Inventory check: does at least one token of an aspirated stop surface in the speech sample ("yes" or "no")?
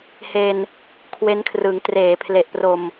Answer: yes